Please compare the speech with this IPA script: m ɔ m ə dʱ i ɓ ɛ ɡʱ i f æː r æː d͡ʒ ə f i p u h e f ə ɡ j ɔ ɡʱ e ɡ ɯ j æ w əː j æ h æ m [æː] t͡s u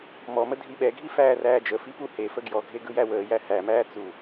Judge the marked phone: correct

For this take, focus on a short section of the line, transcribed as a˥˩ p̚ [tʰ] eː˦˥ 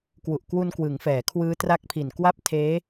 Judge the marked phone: correct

